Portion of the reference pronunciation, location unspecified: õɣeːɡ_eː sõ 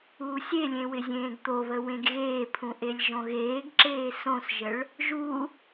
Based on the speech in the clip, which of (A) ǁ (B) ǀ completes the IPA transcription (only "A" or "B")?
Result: A